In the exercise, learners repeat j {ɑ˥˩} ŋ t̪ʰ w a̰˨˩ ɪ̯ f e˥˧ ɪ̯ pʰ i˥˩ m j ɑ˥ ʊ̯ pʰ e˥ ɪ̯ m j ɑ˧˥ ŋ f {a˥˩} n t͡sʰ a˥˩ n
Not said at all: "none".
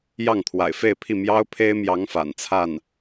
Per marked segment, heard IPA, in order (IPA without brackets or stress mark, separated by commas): ɑ˥˩, a̰˨˩